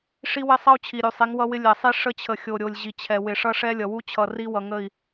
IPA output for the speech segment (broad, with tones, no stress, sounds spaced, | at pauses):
ʂ i˦ w ɪ˦ sˤ ʌ˦ u̯ t͡ɕʰ i˨ ɾʲ u˨ sˤ i˨˦ ŋ w ʌ˦ w ɪ˦ lʲ ɛ˨ sˤ i˦ ʂ ə˦ t͡ɕʰ ə˨ xʲ o˨ ɾʲ o˨ lʲ ʑ i˨ t͡ɕʰ ɛ˨ w ɪ˨ ʂ ʌ˦ ʂ ɛ˦ lʲ ʌ˨ w u˦ t͡ɕʰ ʌ˨ r i˦ w ʌ˨ ŋ ə˦˨ i̯